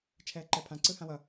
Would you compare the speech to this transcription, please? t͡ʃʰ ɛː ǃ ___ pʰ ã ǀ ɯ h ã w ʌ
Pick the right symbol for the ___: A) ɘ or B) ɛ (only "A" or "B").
B